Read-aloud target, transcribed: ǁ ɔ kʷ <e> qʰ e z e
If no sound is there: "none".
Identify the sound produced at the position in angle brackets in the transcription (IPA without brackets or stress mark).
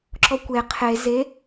e